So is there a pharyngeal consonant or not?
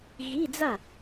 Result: no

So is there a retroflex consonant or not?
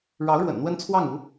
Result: yes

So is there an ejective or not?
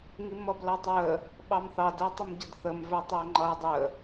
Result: no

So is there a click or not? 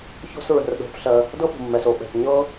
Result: no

